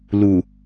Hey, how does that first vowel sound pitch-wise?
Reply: low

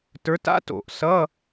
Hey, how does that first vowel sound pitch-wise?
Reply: rising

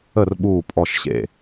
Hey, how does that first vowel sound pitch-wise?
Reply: falling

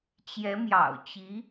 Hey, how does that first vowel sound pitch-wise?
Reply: rising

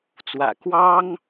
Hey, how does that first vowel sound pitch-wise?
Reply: low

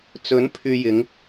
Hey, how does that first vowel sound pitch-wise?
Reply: rising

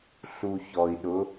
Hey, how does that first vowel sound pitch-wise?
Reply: low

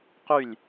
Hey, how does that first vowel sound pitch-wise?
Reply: falling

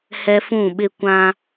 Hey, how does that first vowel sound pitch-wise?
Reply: high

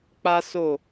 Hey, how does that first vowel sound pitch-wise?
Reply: high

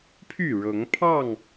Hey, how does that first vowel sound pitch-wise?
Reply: falling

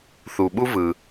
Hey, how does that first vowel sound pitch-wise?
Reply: low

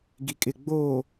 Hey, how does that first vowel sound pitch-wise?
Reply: low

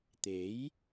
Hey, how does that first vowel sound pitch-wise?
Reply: rising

